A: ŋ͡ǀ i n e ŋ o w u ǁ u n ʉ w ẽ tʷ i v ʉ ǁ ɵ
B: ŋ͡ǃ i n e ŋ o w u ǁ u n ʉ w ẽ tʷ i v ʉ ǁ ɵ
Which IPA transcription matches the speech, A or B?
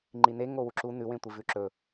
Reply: B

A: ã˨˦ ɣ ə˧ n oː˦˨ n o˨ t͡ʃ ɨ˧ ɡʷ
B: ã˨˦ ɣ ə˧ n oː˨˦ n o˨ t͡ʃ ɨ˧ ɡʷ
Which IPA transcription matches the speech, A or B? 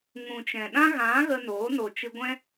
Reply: B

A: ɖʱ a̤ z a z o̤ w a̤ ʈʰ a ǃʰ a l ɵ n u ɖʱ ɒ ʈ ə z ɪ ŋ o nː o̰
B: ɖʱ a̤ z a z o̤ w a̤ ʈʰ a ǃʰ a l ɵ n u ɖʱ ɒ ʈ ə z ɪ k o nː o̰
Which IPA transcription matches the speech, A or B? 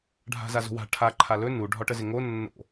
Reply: A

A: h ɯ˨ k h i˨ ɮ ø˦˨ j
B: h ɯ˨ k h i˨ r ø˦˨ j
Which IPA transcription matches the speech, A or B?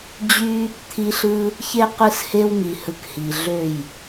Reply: A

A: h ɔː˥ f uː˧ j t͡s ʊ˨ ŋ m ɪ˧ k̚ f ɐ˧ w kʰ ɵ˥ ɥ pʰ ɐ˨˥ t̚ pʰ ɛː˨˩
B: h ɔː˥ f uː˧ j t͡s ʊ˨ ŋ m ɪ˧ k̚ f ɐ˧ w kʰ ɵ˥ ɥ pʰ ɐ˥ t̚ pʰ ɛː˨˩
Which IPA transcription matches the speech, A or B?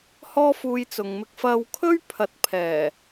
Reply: A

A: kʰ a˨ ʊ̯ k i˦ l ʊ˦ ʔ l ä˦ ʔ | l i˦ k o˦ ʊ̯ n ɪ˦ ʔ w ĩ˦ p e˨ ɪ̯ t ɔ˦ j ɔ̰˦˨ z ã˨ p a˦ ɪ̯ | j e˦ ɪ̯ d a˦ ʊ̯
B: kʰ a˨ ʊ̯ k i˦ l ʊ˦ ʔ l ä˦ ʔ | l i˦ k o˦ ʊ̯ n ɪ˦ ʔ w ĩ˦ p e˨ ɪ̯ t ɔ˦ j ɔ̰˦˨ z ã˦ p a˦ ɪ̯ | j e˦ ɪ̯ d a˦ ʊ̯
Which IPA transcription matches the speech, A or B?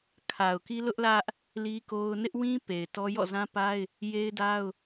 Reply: B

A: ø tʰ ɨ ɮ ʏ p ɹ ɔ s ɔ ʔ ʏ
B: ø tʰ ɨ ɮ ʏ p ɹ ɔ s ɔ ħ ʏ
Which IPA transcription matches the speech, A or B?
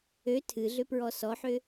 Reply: B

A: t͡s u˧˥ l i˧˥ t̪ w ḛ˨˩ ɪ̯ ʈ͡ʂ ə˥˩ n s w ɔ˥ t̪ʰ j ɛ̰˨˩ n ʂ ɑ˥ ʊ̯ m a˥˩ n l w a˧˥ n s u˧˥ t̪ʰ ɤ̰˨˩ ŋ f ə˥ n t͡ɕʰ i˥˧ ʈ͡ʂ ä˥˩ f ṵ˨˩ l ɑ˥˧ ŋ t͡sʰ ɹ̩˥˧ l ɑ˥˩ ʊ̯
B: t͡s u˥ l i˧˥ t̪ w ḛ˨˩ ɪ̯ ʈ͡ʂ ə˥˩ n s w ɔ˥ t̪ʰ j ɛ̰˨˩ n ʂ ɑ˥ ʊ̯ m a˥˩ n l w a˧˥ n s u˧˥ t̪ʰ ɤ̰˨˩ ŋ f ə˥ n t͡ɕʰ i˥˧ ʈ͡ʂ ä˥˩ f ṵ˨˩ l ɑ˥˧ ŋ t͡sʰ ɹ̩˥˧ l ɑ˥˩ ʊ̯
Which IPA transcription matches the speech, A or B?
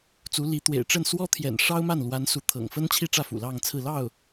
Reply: A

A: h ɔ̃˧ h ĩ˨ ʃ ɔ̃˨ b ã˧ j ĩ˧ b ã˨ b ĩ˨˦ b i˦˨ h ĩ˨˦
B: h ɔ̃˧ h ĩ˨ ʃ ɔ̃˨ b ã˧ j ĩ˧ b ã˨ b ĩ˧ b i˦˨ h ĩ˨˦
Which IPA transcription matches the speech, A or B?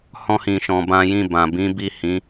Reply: A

